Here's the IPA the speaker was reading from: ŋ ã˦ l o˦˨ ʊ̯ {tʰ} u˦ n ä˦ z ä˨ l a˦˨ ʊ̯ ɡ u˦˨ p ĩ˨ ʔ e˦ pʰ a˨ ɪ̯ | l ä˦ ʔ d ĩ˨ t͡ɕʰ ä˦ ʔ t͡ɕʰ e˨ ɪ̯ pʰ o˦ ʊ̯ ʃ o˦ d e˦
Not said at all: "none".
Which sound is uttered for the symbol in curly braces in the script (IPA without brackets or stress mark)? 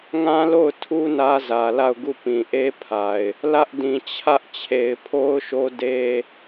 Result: tʰ